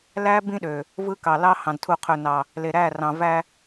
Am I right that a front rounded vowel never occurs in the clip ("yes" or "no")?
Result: no